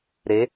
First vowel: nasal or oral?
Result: oral